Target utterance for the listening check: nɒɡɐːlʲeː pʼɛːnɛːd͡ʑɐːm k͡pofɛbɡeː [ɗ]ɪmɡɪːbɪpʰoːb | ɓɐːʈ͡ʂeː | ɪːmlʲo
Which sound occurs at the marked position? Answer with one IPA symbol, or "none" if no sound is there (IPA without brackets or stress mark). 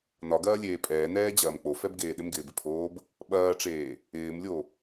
ɗ